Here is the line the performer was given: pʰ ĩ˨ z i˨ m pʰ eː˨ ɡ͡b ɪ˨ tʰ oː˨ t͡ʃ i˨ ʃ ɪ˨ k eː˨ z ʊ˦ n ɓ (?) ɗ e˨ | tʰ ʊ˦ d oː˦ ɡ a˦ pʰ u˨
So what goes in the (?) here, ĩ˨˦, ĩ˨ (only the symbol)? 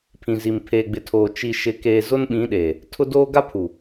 ĩ˨˦